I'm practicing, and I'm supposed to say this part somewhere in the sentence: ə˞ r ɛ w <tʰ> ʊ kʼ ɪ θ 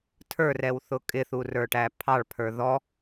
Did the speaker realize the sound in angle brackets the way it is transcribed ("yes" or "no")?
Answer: no